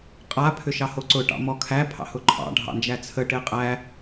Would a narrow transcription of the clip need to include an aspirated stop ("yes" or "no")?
yes